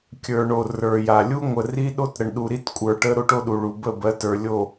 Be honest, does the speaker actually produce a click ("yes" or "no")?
no